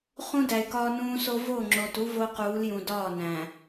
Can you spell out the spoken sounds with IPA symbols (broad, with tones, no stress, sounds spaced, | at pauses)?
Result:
χ ũ˦ d æ˨ ɪ̯ k ɒː˦ n ũː˦ s o˦ v o˦˨ ŋ͡ǁ o˨ t u˦ v o˦ q uː˨˦ l j ũ˨ d ɒː˦˨ n æ̃˨